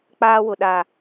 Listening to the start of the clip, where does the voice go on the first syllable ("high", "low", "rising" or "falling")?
high